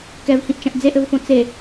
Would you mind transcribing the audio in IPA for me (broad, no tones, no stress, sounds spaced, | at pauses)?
k ɛ v h ĩ ʔ t͡ʃ ɐ̃ ʔ d͡z e ʔ ɘ v f õ t͡s e